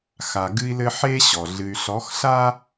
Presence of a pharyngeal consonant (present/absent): present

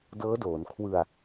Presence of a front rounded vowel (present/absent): absent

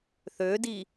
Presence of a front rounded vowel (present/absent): present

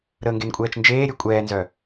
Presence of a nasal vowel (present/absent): absent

